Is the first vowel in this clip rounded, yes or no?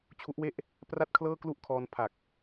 yes